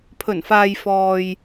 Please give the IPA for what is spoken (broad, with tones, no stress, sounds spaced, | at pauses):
pʰ ɵ˨˩ n f aː˨ j f ɔː˨ j